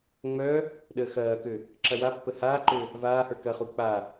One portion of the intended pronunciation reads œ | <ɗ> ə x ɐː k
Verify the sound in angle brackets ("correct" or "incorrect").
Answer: correct